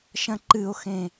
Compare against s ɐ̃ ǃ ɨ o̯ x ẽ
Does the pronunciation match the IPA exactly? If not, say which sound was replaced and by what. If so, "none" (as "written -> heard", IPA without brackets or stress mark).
s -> ʃ